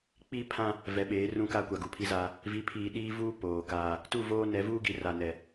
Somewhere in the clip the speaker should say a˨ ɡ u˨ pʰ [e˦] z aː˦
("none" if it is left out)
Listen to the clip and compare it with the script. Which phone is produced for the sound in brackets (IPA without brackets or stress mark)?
i˦